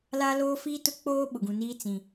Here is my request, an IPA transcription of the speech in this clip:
la˦loː˦fi˦tʊ˦ k͡poː˦ ɓʊ˨ɡũ˨niː˦t͡sĩ˨

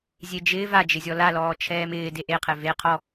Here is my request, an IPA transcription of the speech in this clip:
zʲed͡ʒɪː va d͡ʒɪzʲɔla lɔːt͡ʃʰɛːmɪː deʔe qʰɛve qʰɔ

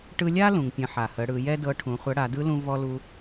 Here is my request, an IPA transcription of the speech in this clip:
ʈɯ˧lʲa˥ lũ˩ŋpʲə̃˩˧ ħa˩hə˩˧ɽɯ˩˧jɛ˥ dɤ˧˥ʈʰũ˩˧χʷə˧˥ ɽa˩˧dɯ˧˥lũ˧ vɔ˧ lu˧

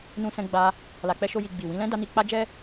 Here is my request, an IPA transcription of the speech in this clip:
nũ˧ sɛ̃˧ɡ͡ba˧ | la˧k͡pɛ˦ʃo˦ji˧ ɡ͡bi˨wĩ˧lɛ̃˦ da˦ni˧ k͡pa˦d͡ʒɛ˦

